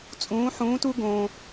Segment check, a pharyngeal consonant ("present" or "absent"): present